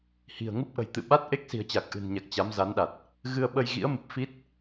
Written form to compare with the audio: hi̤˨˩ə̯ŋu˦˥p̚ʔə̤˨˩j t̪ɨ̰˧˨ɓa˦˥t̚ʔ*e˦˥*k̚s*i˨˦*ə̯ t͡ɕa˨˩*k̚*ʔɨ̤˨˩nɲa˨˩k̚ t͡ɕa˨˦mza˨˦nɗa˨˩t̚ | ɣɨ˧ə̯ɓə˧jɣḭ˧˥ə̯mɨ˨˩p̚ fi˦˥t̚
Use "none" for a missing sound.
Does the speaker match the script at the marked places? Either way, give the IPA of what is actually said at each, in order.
e˦˥, i̤˨˩, k̚

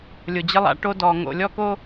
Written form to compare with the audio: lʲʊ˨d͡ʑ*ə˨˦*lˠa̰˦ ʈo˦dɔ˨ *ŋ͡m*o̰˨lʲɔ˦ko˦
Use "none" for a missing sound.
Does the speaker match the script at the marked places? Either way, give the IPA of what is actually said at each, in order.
ə˦, ŋ

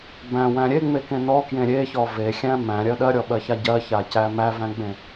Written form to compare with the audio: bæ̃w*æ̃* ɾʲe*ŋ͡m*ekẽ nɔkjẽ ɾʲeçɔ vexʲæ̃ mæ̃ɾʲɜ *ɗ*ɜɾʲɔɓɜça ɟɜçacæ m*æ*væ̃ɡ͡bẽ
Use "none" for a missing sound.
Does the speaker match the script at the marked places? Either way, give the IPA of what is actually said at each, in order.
æ̃, ŋ͡m, ɗ, æ

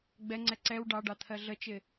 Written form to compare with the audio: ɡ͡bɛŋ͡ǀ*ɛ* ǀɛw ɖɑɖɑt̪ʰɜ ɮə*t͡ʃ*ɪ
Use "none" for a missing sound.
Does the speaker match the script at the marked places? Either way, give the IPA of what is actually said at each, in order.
ɛ, t͡ʃ

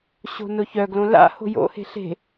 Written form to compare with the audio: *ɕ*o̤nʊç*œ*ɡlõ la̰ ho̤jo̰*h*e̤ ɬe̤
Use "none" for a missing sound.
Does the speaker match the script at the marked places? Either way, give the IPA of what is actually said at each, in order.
ɕ, œ, h

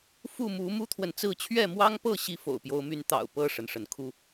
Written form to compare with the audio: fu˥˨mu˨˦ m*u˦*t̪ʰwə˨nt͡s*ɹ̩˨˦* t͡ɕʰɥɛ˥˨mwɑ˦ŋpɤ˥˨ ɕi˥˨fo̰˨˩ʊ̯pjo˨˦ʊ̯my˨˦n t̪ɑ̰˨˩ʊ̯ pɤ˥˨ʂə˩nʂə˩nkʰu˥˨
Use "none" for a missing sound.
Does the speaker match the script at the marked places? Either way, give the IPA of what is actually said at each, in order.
u˦, ɹ̩˥˨

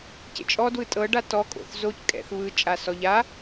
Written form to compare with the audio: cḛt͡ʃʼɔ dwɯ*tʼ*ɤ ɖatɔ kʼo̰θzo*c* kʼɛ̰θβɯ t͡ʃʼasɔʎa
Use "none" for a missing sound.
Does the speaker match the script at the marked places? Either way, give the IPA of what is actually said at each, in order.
tʼ, c

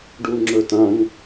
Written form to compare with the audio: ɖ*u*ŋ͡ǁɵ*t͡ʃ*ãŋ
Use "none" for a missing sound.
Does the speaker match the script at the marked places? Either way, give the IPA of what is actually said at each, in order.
u, t

